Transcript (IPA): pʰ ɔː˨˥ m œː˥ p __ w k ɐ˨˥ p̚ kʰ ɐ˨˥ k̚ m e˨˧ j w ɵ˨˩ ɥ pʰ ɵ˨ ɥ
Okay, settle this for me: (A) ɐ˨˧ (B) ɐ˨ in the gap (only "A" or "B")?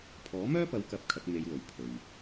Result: A